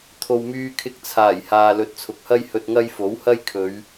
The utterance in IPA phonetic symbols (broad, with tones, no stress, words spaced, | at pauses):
t̪ʰo˨wmyː˧kʰɪ˧k̚t͡sʰaː˨˩j haː˨lɵ˨t̚t͡sʰʊ˨k̚hɐ˥j hɵ˧t̚ŋɐ˥j fo˨˥whɐ˥jkʰɵ˨˧ɥ